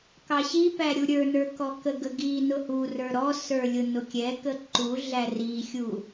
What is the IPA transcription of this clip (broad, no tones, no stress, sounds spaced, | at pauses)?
k ɑ ɕ i p æ ɾʲ u ɾʲ ə˞ n ə˞ k ɔ k ə ɡ ə ɡ iː n ʊ h u r ə˞ ɾ ɔ s ə˞ lʲ ʊ n ʊ kʲ ɛ k ə ǃ u ɮ æ r i xʲ u